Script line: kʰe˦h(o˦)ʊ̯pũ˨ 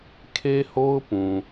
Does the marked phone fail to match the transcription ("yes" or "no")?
no